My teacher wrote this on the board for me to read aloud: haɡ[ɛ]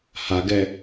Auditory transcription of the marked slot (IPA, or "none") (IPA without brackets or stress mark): ɛ